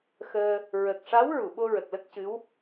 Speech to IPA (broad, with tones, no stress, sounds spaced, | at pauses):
x əː˧ | ɹ ə˨˩ k̚ ʂ a˧˥ w ɹ u˨˩˨ ɓ o˧ ɹ ə˨˩ k̚ l ə˦˥ k̚ c ɨ˧˥ w